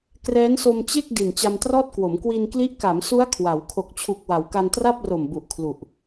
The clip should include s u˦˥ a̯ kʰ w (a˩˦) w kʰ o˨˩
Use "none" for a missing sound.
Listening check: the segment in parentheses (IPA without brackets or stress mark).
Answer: a˩˦